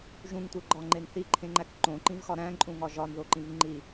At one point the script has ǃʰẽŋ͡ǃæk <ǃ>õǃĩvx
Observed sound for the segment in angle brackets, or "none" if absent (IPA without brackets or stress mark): ǃ